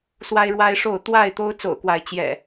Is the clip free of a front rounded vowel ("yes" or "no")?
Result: yes